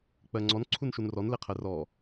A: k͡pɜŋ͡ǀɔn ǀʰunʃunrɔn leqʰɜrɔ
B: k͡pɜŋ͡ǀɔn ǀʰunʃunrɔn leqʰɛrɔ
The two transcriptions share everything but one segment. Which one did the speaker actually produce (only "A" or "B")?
A